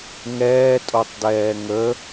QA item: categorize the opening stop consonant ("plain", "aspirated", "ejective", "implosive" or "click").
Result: ejective